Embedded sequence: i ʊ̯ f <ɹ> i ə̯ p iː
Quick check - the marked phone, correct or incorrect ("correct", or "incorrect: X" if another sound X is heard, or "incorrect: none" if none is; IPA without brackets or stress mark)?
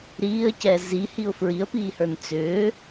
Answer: correct